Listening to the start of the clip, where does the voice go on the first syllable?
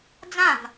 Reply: falling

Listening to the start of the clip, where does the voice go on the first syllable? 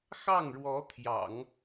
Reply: falling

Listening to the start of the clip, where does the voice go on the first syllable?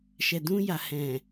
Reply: low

